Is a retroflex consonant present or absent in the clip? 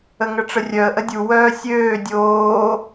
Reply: present